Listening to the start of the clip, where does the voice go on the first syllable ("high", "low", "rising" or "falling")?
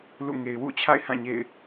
falling